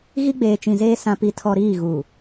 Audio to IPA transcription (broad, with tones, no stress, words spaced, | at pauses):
ɣi˦ɡ͡beː˨t͡ʃĩ˨zeː˦ sã˨pi˨tʰɔ˨ ɾiː˦˨ɣu˨